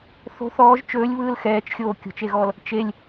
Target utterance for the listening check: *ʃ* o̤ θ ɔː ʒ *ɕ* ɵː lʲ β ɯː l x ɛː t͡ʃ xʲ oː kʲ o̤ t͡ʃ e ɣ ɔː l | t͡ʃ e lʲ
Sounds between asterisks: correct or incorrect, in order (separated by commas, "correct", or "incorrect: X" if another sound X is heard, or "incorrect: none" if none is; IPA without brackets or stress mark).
incorrect: θ, incorrect: t͡ʃ